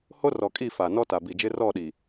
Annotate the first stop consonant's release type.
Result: ejective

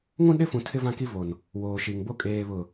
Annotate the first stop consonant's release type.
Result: implosive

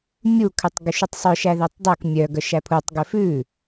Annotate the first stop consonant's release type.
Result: aspirated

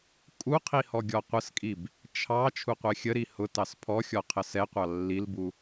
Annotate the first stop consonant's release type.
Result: ejective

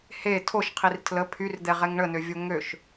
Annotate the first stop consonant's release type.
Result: aspirated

